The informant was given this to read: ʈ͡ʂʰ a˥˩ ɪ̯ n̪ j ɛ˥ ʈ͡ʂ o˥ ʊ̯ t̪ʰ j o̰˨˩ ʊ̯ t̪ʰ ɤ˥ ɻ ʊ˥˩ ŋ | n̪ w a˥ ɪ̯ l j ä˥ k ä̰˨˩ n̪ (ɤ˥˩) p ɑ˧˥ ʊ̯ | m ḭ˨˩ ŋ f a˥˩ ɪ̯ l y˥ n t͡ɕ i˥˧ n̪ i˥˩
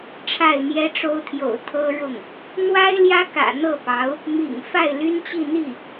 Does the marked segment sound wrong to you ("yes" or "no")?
no